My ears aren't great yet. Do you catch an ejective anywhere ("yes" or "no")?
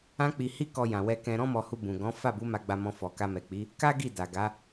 no